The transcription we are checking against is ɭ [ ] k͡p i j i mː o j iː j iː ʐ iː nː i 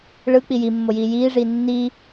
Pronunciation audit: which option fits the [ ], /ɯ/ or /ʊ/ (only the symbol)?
ɯ